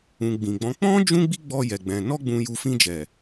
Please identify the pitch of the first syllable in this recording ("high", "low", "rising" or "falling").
low